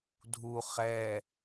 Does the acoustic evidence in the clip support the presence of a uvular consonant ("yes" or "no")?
yes